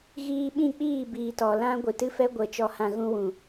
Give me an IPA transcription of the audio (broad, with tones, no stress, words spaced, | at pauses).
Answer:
ɣiː˧ɓĩ˦˨k͡piː˦˨ biː˨tɔ˨lã˦ ɡʷɨ˨tɨ˦fɛ˦ ɡʷə˨ t͡ʃɔ˧hã˧ɣũ˦wũ˨